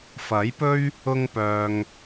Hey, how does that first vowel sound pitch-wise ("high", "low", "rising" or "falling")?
rising